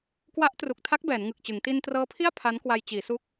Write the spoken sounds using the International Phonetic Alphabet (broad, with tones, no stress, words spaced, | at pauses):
kwa˦˥ʔ tru˨˩k̚tʰa˦˥k̚ bɛː˩˦nŋɯ˨˩k̚t͡ɕɯ˩˦ŋ ti˧ntrɤː˦˥pʰi˥˩a̯ pʰa˦˥nkwa˧j t͡ɕiː˩˦su˦˥k̚